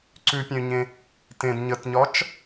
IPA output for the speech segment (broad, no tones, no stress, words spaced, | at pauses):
ǀʉpʲœ̃y̯ɲẽ | tẽd ɲətɲɒt͡ʃ